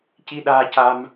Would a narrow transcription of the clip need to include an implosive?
yes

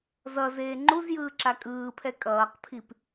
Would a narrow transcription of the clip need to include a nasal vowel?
no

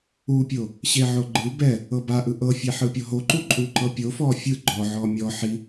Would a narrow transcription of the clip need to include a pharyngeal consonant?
yes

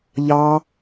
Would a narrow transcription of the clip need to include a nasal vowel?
no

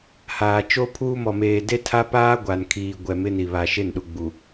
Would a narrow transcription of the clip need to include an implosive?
yes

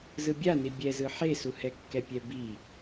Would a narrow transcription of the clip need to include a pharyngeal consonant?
yes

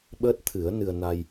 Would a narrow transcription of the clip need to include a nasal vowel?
no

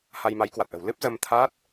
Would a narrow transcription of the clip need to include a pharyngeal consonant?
no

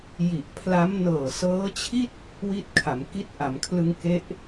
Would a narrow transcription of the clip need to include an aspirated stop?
yes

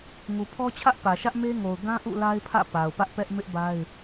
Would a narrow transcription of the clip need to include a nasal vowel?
yes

